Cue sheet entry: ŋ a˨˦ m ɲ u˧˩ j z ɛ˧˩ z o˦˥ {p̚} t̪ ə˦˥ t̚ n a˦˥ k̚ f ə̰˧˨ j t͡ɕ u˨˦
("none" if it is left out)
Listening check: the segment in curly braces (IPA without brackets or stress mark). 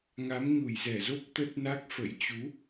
p̚